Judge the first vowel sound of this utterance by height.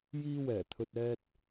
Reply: high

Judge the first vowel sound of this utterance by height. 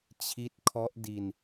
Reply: high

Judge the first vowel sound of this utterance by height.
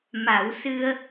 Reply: low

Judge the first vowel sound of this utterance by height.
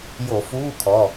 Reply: mid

